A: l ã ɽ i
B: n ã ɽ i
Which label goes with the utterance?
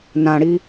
B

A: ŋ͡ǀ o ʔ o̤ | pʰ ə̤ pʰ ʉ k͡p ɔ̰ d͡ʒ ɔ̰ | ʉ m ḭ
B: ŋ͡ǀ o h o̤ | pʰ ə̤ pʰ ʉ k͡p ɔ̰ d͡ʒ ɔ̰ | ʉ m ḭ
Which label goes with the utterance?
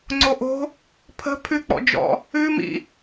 A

